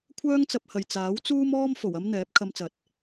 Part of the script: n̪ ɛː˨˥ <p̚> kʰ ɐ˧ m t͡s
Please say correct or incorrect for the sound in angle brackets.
correct